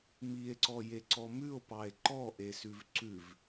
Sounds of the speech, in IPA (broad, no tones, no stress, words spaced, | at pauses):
mie̯ǀɔjeǀɔ mʉo̯pɑe̯ ǃɔʔesʉv ǀʉv